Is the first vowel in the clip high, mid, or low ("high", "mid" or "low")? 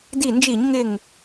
high